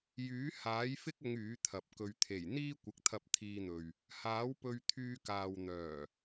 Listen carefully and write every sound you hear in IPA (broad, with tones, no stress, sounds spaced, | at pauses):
j yː˨˥ h aː˨˥ j f ɪ˥ k̚ ʊ˨˧ ŋ yː˨˥ t̪ʰ ɐ˨˥ p̚ k ɵ˧ ɥ t̪ʰ e˨˩ j n̪ iː˥ kʷ ɪ˨ k̚ t̪ʰ ɐ˧ p̚ t̪ʰ iː˧ n̪ ɵ˨ ɥ | h aː˨˥ w p ɵ˧ ɥ t̪ʰ yː˧ k aː˨ w n̪ œː˨˩